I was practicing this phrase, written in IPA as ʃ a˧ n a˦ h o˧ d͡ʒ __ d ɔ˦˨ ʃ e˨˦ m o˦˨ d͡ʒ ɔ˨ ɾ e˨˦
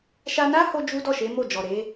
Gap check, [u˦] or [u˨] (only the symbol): u˦